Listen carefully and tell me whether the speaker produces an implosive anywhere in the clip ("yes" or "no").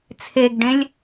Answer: no